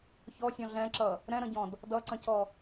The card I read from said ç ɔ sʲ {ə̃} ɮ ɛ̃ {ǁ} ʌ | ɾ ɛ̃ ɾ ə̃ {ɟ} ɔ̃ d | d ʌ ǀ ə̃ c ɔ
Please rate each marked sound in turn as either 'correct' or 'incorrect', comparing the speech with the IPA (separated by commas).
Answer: incorrect, correct, correct